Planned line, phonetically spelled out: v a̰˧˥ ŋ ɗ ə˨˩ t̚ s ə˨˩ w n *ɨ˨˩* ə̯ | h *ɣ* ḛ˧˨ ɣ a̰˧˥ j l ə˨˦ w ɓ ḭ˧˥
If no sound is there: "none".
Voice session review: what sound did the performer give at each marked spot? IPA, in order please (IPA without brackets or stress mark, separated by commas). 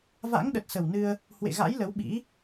ɨ˧, w